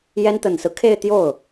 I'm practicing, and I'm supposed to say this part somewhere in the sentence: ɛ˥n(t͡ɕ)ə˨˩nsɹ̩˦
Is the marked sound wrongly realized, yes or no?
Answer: yes